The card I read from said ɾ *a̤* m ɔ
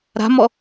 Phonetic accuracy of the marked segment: correct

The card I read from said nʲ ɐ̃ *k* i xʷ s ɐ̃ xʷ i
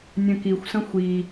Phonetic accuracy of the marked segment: correct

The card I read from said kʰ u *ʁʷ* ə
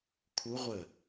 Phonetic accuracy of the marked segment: correct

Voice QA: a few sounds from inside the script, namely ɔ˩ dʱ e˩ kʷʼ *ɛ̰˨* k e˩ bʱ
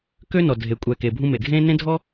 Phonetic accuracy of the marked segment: incorrect: ɛ˨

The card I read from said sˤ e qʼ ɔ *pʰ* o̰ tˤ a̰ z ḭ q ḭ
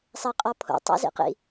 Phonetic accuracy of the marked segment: correct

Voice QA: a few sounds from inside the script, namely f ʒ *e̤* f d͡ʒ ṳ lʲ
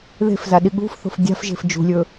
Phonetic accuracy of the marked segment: correct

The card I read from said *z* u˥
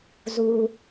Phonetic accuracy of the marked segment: correct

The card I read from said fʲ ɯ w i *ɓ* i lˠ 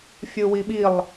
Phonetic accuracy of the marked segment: correct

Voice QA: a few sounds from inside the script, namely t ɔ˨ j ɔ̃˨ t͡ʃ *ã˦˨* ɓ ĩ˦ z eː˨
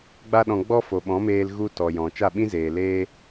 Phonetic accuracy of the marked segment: incorrect: a˦˨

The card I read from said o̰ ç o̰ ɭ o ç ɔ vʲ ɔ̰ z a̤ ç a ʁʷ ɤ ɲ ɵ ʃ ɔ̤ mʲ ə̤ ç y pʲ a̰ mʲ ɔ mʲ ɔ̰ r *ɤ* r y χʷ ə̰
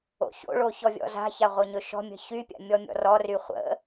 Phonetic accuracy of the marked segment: incorrect: ɔ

